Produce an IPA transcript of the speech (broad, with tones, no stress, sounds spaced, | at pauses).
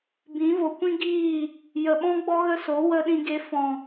b ĩ˨˦ v o˨ kʷ ĩ˦ ɡ iː˦˨ | j ə˨ ɓ ɔ̃˦ ɡ͡b ɔ˦ ɣ ə˦ s o˨˦ w ə˦ ɗ ĩ˧ ɡ e˧ f ɔ̃˨